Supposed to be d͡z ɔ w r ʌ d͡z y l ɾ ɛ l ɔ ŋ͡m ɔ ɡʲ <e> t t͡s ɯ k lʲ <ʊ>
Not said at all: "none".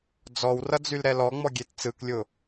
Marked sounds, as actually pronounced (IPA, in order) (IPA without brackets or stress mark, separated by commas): e, ʊ